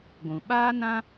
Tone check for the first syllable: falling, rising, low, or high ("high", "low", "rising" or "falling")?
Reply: low